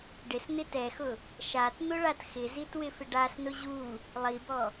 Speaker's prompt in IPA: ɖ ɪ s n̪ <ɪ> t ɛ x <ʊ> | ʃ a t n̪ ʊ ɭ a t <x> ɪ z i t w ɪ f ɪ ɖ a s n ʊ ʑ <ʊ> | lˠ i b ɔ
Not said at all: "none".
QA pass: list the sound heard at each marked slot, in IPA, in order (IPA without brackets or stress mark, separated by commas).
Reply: ɪ, ʊ, x, u